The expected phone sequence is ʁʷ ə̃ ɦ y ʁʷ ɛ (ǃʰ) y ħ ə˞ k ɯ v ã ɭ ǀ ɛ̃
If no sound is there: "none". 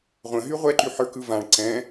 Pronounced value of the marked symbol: ǃ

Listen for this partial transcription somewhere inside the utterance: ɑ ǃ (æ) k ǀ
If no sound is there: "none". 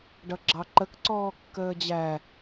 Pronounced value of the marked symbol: ə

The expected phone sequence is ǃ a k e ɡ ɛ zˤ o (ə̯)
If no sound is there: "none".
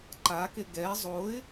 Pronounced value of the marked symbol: ɪ̯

